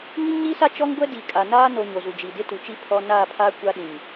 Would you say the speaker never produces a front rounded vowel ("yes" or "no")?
yes